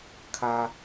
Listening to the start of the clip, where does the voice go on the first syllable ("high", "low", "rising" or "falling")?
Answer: low